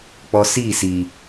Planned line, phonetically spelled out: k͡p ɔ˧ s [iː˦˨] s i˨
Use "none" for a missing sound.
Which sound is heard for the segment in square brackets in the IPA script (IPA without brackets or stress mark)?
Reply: iː˦˨